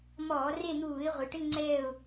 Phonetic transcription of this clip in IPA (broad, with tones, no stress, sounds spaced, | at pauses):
m ɔː˧˩˧ r e˦˨ n̪ uː˧˩˧ ɪ̯ ʁʷ ɪ˩˧ ʈ ɪ˧˥˧ ŋ͡ǀ ɛː˦˨ ʊ̯